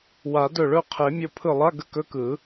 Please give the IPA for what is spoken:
w a˨˩˦ d ɵ˧˩ ɭ ɵ˥˧ qʰ e˨˩˦ mʲ o˧˩ pʰ ɯ˧˩ lˠ a˧˥˧ ɡ ə˥˧ k ɵ˧˥˧ k ɯ˨˩˦

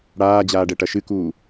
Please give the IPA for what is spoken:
ɽ aː d͡ʑ aː ɖ ɛ ʈ ɐ ʃ ɨ k uː

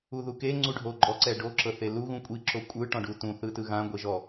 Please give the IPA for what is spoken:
u ð u k e ŋ͡ǀ u ɖʱ o ɡ͡ǃ ɔ ǀ ɛ ɖ o ǁ ɤ θ e l u ɣ ũ kʷʼ i ǁ o kʷʼ ɯ ʈ ɔ̃ ɖ u t ũ θ ɯ t ɯ ɣ ã ɡʷ e ʒ ɔ

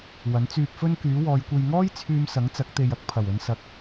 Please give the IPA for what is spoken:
w ɐ˨˥ n t͡s yː˧ p̚ f ɵ˥ n k yː˨˥ w ɔː˨˧ j kʷ e˧ j ŋ ɔː˥ j t͡sʰ yː˧ m s ɐ˨˥ ŋ t͡s ɐ˨˥ k̚ t̪ e˨ j ɐ˨˥ k̚ pʰ ɐ˨˩ w ɵ˨ n s ɐ˨ k̚

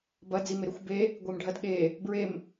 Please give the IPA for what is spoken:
b ɐ d͡z i m e ɾ ɵ xʷ b e | ɡʷ e m ɖʱ ɐ d ɠ e | b ɹ e m

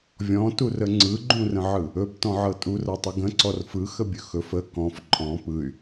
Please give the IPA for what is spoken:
vʲ ɔ̃ t u r ə ŋ͡ǀ ɯ ɡ͡ǃ ũ r ə̃ ʕ ɯ | ɵ b t ɔ̃ ʕ ɤ tʼ u r ɤ tˤ ɯ ɡ ə̃ ǀ ɔ r f ɯ x ə bʲ ɵ x ɵ f ə k ɔ̃ f ǃʼ ɔ̃ p ɯ y̯

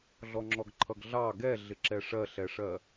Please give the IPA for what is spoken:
ɮ ɔ ŋ͡ǁ ɔ ɡ ǃʰ ʌ ɡ ɮ ɑ ɡ ɛ ɮ ɪ ǁ ɛ ʂ ɜ ɬ ɛ ʂ ɜ

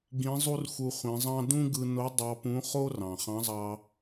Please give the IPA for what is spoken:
ɡ ĩ˧˥ zˤ u˥ r x u˧ χʷ ĩ˩˧ zˤ ɑ̃˥ d ũ˥ ɡ ɯ˧ n o˧˥ dˤ ɑ˧ p ũ˧˥ χ o˥ r ɑ̃˩ χ ɑ̃˧˥ zˤ ɑ˧

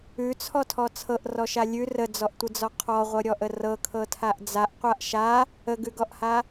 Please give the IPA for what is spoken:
ʉ t͡sʰ ɔ tʰ ɔ t͡sʰ ɤ ʔ r ɔ ʃ a lʲ ʉ r ə d͡z ɔ ʔ tʷ ə d͡z ɔ qʰ ɔ ʁʷ ɤ ɾʲ ɔ ʔ ə r ɤ kʰ ɤ tʰ a ʔ d͡z a ʔ qʷ a ʔ ʃ a | ə ɡ ʉ ɡ ɔ ʔ h a

